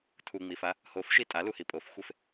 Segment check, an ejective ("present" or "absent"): present